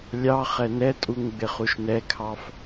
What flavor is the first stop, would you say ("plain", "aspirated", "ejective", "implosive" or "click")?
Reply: ejective